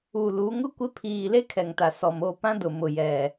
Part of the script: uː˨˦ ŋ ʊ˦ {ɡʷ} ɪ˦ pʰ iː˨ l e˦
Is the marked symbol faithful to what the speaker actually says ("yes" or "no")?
no